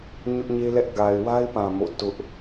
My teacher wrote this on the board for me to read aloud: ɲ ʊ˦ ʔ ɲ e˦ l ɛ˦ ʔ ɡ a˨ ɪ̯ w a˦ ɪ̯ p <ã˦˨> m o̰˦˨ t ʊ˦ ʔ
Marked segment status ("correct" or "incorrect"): incorrect